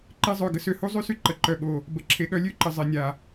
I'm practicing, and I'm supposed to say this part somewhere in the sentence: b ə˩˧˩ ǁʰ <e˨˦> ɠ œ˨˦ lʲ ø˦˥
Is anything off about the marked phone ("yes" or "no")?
no